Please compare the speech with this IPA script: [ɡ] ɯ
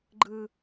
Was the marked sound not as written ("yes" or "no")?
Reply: yes